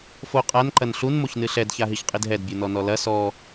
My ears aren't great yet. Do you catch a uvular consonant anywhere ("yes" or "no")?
yes